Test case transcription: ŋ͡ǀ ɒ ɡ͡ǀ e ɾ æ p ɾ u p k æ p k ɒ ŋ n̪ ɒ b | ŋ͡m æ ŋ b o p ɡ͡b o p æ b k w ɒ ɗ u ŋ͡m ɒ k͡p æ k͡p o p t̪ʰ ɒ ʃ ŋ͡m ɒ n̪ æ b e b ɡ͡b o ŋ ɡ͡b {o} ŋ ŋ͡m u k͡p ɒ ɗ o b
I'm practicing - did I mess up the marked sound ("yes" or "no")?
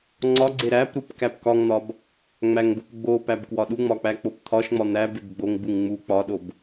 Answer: yes